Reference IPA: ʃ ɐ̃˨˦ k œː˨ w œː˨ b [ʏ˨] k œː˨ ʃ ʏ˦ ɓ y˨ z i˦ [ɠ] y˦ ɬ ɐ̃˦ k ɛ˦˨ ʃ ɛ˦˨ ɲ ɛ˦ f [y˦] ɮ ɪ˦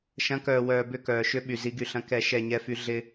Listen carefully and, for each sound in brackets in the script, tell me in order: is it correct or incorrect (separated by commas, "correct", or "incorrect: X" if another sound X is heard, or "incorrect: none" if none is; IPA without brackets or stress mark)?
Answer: incorrect: ʏ˦˨, incorrect: ɡ, correct